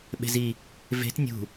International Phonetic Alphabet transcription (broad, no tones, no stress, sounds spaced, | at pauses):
ɓ e̤ z i | v e̤ t nʲ ṳ